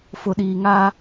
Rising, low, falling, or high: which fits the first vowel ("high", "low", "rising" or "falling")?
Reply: low